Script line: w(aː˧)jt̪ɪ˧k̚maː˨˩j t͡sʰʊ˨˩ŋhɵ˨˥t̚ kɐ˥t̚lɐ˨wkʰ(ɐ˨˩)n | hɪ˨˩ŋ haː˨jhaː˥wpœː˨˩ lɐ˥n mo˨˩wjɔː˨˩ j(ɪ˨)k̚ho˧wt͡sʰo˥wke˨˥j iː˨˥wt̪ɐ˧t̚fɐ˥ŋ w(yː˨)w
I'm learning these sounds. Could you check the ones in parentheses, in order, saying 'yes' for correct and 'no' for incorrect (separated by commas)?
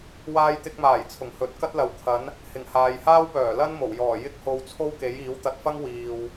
yes, no, no, no